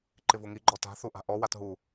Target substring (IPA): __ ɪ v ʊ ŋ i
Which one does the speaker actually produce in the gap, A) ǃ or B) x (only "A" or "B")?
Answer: A